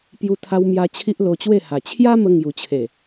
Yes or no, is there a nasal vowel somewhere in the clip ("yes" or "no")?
no